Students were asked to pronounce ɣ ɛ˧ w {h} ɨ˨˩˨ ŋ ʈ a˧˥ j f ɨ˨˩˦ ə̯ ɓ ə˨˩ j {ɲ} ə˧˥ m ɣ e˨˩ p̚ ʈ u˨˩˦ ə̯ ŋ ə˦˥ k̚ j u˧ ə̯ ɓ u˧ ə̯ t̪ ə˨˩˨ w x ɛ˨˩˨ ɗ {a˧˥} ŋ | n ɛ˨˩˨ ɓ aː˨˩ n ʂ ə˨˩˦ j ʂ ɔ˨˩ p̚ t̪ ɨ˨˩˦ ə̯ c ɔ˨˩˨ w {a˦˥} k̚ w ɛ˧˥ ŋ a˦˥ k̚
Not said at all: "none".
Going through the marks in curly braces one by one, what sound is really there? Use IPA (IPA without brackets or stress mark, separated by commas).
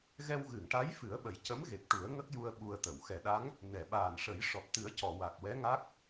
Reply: ɣ, c, a˧˥, a˨˩